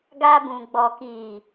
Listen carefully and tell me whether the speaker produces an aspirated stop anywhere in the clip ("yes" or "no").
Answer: no